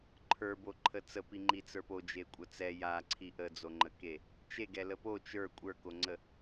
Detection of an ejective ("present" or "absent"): present